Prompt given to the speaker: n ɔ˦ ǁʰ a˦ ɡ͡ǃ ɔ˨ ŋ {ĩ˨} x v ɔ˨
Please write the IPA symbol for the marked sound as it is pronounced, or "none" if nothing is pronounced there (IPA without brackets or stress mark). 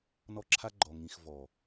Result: ĩ˨